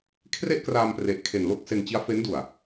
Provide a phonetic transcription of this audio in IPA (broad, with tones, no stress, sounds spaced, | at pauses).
kʰ r e˥˩ ʔ k r aː˧ m p r e˨˩ ʔ kʰ e˨˩ n l o˥˩ k̚ s e˧ n t͡ɕ i˦˥ a̯ f e˦˥ n d u˨˩ a̯